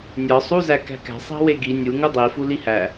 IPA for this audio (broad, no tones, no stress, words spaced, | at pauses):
nʲɒ sˤuzæ kæ̤kæ̤ sˤæ̤weɡi nʲu ŋudˤifu lihæ